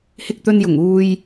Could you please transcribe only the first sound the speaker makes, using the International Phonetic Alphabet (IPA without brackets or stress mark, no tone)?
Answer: h